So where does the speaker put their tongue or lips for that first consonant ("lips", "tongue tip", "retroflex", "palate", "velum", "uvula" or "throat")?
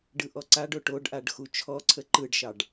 retroflex